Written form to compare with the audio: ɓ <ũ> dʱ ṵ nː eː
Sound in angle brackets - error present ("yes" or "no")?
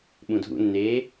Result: no